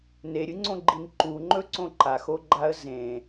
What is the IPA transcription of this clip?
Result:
n e ɾʲ ɨ ŋ͡ǀ õ ɡ͡ǃ i n ǃ u ŋ͡ǃ ɵ ǀ õ ǃ a x o ɡ͡ǃ a ə̯ z ẽ

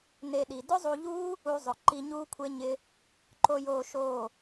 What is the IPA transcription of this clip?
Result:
n e˧ ɗ i˨ d ʊ˦ zˤ u˧ ʎ uː˦ | u˧ zˤ ʊ˨ ǃ i˧ ɲ uː˦ kʷʰ e˦ ɲ ɪ˦ | ǃ o˧ j oː˧ ʃ oː˦˨

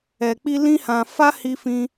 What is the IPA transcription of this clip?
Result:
ɛ˨ k͡p i˧ l ĩ˦ h ã˧ f a˦ h i˧ f ĩ˧

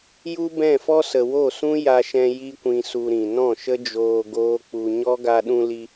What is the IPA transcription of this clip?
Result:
j u˦ b ɛ̃˦˨ f ɔ˦ s ə˨ w o˦˨ s ũ˦ j a˧ ʃ ɛ̃˧ j i˦ kʷ ĩ˧ s u˧ ɾ ĩ˨ n ɔ̃˦˨ ʃ ə˦ d͡ʒ oː˧ ɡ oː˦ k͡p u˧ ɲ ɔ˦ ɡ a˧ ɗ ũ˧ l i˧

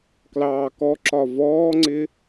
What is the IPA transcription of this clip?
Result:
k l ɑː k ɔ ǁ ɒ v ɔː ŋ͡ǀ ɪ

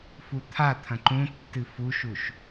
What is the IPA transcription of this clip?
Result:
f u t̪ʰ a t̪ʰ ɐ̃ ǃ ũ tː ɨ f u ʃ u ʃ

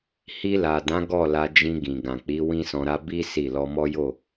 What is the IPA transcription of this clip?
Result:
h i˧ l a˨ d ã˨˦ ɡ ɔ˦˨ l a˧ d͡ʒ ĩ˧ ɡ ĩ˨ ɡ ã˨ k͡p i˨˦ w ĩ˦ s ɔ̃˧ ɾ a˦ b i˦ s i˦˨ l ɔ˧ m ɔ˦ j o˦˨

